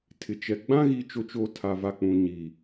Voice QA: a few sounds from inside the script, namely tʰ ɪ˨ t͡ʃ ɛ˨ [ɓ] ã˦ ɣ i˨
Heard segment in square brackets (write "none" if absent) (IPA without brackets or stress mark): ɡ͡b